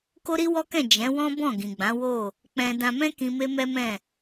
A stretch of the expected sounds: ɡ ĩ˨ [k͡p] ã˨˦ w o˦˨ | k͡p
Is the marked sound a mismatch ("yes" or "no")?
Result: yes